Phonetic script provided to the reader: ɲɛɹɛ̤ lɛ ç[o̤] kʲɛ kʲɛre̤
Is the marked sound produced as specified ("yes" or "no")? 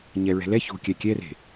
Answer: yes